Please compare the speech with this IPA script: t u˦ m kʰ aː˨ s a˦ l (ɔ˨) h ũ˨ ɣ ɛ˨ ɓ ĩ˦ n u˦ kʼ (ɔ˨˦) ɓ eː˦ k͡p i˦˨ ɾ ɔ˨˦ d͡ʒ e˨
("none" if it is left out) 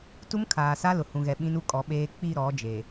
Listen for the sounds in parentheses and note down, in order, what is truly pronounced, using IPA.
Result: ʊ˨, ɔ˨˦

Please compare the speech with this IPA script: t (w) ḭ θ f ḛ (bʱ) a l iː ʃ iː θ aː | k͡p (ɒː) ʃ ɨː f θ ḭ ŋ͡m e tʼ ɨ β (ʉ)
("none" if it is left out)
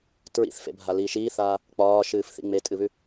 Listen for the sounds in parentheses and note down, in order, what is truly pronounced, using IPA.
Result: ɹ, bʱ, ɒː, ʉ

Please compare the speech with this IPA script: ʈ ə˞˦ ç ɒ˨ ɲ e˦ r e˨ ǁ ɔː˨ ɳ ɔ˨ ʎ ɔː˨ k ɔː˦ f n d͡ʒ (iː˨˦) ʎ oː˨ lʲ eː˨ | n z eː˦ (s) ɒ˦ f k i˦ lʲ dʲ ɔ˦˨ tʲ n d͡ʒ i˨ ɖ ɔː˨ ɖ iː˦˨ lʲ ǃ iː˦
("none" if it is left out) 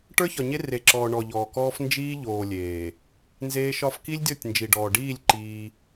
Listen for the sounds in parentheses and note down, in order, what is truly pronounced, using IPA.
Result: iː˦, ʃ

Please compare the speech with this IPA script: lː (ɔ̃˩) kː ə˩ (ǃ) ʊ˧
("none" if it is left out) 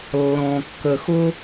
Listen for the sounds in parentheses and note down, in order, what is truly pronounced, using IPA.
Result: ɔ̃˩, x

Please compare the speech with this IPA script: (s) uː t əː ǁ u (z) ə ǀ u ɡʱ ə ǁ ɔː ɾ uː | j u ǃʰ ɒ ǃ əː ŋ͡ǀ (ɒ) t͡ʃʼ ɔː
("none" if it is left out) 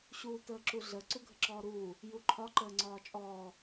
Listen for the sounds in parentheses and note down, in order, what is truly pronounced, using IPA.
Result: ɕ, ɮ, ɒː

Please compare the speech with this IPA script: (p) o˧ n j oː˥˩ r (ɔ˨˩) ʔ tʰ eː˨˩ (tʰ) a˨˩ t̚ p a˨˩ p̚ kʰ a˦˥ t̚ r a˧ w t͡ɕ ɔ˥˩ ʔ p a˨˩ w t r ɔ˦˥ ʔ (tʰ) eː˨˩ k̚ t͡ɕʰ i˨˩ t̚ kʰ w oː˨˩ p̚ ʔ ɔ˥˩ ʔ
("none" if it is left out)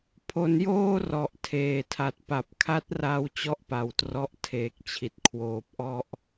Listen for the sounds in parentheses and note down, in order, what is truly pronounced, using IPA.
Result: pʰ, ɔ˨˩, tʰ, tʰ

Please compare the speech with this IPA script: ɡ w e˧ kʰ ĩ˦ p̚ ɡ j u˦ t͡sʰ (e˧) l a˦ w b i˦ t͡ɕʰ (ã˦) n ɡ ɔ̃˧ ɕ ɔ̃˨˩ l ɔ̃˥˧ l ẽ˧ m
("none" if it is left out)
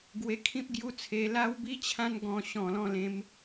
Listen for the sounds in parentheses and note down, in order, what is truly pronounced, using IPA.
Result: e˧, ã˦

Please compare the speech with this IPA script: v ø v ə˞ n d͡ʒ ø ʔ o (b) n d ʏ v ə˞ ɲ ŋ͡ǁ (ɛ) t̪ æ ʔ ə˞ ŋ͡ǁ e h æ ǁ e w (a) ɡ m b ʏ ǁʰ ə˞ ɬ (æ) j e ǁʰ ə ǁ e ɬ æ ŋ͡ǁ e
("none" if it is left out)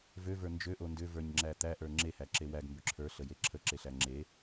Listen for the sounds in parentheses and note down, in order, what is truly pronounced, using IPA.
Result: none, æ, æ, ə

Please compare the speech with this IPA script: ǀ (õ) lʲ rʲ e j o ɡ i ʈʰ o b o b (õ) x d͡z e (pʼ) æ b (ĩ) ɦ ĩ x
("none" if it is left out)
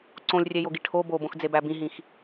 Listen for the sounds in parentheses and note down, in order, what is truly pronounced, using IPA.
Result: õ, õ, b, ĩ

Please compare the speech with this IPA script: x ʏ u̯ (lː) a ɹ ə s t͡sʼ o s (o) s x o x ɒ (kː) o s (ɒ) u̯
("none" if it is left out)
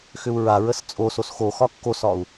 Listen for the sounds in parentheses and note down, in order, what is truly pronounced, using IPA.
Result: ɹ, o, kː, ɒ

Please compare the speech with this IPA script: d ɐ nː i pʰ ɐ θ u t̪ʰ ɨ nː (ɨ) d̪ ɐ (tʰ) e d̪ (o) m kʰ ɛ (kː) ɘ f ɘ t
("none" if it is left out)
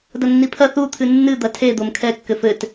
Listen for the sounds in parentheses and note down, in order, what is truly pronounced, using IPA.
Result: ɨ, tʰ, o, kː

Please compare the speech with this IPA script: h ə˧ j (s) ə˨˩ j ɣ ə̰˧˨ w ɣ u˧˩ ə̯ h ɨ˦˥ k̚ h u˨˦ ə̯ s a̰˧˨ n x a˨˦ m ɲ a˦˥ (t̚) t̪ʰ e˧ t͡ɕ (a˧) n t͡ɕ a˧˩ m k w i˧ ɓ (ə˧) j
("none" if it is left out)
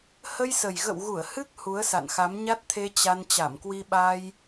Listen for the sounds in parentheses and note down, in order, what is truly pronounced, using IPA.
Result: s, t̚, a˧, a˧

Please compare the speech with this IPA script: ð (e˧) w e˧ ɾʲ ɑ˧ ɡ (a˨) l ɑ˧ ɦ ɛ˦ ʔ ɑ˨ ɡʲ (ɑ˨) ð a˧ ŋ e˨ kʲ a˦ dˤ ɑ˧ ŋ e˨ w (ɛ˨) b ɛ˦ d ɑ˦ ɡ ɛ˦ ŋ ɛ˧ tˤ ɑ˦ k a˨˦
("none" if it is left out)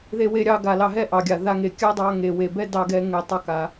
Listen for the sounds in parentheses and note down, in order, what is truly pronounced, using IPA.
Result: e˧, a˧, a˨, e˨

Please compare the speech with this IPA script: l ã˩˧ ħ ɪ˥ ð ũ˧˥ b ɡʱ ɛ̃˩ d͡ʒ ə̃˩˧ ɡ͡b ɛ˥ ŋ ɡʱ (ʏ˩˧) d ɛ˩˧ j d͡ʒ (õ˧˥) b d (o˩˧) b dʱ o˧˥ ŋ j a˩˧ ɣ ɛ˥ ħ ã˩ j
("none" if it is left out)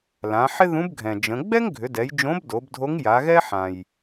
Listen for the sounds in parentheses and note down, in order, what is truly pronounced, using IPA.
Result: ʏ˩˧, õ˧˥, o˩˧

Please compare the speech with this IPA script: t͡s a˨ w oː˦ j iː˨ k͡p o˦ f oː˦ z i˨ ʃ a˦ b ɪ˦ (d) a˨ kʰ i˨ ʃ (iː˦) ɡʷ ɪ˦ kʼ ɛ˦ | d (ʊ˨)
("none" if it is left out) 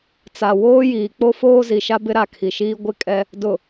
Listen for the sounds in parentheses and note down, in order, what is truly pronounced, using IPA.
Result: ɾ, iː˦, ʊ˨

